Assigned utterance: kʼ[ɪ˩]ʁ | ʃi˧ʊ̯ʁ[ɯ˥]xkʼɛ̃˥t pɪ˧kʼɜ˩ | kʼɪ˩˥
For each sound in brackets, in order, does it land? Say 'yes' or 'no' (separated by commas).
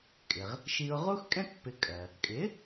yes, no